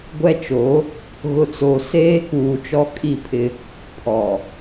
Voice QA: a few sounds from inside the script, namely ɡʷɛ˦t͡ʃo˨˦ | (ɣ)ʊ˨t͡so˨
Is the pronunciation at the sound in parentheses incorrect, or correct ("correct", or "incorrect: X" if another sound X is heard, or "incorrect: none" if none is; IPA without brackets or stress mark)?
correct